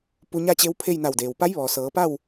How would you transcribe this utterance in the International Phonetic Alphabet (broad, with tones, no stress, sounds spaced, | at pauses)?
p u˧ ɲ a˥˨ t͡ɕ e˧˥ w pʰ e˥˨ j n a˧˩ w d eː˩ w p a˧˥ j ʋ ɔː˩ s ɤː˩˧ p a˥˨ w